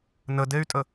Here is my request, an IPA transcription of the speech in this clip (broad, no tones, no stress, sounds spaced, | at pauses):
n ə d e y̯ tʼ ə